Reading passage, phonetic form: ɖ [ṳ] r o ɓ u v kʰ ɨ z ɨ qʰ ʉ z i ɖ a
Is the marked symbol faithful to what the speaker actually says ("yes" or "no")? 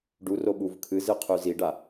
no